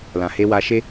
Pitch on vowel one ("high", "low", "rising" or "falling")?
low